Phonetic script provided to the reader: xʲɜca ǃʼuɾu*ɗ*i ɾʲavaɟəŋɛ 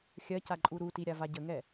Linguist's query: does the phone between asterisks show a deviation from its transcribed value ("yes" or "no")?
yes